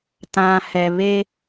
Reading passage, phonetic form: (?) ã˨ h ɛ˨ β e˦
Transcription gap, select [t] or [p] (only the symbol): t